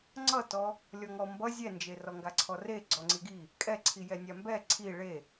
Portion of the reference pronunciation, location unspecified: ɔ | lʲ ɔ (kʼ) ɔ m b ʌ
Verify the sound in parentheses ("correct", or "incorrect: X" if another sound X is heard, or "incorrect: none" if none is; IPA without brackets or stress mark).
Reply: incorrect: ŋ